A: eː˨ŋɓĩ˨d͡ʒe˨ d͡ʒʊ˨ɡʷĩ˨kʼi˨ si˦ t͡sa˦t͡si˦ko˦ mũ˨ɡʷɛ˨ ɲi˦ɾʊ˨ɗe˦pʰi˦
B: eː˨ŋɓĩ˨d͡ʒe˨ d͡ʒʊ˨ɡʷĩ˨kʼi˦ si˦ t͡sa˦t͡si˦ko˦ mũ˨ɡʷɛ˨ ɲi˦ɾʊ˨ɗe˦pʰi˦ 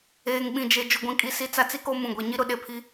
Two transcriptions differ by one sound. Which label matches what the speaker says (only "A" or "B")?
A